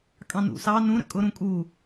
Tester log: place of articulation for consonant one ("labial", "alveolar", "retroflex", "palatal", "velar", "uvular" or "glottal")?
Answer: velar